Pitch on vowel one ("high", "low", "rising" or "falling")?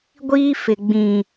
high